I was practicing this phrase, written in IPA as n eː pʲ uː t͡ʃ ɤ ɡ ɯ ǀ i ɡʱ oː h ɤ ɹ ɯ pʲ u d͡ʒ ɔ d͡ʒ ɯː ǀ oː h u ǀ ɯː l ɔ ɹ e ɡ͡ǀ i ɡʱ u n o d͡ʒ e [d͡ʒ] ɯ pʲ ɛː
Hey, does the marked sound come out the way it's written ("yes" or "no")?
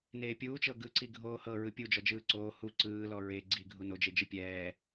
yes